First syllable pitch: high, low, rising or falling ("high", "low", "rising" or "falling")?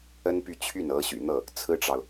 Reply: high